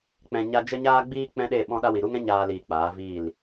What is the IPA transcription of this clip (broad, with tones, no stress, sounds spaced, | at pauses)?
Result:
k͡p ɛ̃˨ ɲ a˧ d͡ʒ ə˧ ɲ aː˧ ɡ͡b iː˧ k͡p ɛ̃˦ ɗ e˦˨ ɓ ɔ̃˦ ɗ a˦ w i˨ ɾ u˦ ŋ ɛ̃˦ ɲ aː˧ l iː˨ k͡p aː˨˦ v iː˦˨ l